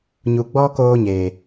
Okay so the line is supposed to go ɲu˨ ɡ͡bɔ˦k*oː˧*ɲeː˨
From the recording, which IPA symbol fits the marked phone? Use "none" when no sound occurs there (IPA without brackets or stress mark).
oː˧